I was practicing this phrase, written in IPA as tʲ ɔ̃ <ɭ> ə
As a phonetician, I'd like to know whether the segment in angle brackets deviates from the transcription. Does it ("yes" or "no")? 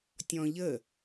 yes